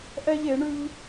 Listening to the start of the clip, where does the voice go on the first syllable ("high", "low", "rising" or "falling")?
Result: high